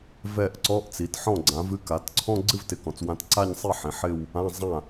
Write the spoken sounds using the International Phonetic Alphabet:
v ɛ˥˩ ʔ ǀ ɔ˧˥˧ ʔ t͡s i˩˥ t ħ ɔ̃˥˩ ɡ͡ǀ ã˩˥ v ɨ˥˧ k a˩˥ t ǀʰ ɔ̃˥˧ ɡ͡ǀ ɨ˥˧ v t ɪ˩˥ k ɔ̃˩˥ t͡s w ã˧˥˧ t ǀ a˥˧ ɲ sˤ i˥˩ ħ ĩ˩˥ ħ ɪ˥˧ w | ã˧˥˧ zˤ ã˥˩

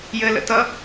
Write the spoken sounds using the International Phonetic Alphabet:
j ɘ l ə̰ t ʌ

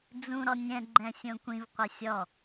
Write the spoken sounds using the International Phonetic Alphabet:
d͡z ũ ɾ ɔ nʲ ɛ̃ ɡ͡ǃ ɛ̃ sʲ õ kʷ ĩ v qʷ ɘ sʲ ɔ

